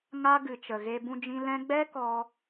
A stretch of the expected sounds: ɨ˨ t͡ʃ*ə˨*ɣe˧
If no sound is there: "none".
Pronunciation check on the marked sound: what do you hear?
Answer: ə˨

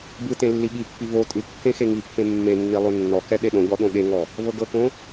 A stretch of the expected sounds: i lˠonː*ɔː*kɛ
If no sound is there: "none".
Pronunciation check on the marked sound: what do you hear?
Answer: ɔ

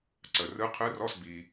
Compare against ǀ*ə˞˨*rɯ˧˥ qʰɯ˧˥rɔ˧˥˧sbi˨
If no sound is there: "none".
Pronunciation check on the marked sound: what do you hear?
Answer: ə˨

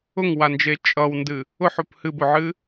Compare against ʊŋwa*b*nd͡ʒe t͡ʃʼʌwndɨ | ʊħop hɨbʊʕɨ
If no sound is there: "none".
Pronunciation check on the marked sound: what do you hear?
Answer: none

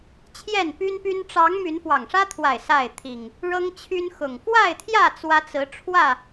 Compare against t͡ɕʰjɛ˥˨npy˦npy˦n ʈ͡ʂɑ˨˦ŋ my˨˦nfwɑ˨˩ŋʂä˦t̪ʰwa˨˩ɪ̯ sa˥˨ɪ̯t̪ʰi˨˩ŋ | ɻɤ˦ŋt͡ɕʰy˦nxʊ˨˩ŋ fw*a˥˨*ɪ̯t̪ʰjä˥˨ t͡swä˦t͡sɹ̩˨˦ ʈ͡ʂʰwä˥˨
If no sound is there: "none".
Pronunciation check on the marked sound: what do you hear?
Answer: a˥˨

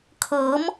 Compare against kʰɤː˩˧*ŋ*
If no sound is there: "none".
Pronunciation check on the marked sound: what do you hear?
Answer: m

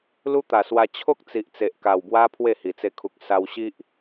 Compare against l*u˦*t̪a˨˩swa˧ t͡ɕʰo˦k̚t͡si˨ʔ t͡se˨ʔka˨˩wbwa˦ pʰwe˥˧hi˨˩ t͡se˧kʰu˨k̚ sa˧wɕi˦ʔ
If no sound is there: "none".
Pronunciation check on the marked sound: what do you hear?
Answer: u˦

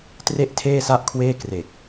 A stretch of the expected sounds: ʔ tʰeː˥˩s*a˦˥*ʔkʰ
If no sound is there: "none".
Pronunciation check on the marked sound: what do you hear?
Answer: a˥˩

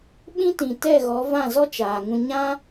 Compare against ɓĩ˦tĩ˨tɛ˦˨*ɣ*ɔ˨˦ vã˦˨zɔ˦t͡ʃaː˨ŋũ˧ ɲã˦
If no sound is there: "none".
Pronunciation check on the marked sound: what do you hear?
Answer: ɣ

